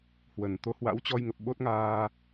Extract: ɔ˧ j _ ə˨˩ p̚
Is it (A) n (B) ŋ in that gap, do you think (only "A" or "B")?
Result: B